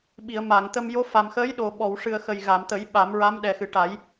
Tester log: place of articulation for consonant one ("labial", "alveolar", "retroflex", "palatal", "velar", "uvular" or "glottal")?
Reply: labial